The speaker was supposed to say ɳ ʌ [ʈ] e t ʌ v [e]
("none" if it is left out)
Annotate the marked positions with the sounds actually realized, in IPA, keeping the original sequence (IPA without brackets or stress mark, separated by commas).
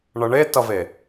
ɳ, e